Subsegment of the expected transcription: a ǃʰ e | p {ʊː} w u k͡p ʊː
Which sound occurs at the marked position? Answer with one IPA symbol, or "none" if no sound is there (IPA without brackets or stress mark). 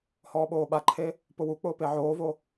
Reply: ʊ